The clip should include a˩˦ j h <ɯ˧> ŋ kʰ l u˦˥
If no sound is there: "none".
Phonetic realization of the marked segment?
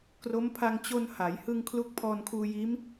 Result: ɯ˧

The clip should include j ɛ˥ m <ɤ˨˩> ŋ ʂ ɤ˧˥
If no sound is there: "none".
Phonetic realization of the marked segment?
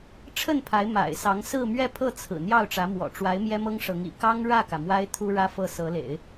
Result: ɤ˥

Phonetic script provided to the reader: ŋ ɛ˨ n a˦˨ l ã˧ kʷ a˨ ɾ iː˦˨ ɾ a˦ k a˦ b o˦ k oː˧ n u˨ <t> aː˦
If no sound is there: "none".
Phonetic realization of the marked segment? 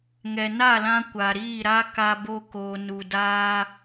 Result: d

